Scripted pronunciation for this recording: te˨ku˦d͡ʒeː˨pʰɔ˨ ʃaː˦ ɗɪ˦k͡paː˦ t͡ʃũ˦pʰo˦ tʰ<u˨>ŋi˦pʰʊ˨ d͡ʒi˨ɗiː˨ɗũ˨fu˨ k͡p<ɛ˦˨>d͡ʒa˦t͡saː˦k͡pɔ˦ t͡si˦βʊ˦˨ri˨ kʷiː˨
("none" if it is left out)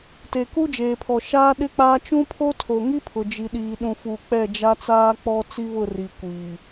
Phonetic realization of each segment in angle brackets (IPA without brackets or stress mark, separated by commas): o˨, ɛ˦˨